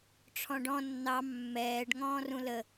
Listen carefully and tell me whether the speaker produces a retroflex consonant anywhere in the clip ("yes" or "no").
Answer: yes